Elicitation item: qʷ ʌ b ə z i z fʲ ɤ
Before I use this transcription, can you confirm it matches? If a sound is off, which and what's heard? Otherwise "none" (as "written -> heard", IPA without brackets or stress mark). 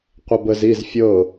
none